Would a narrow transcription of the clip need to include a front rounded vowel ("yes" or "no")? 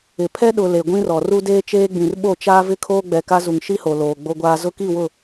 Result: no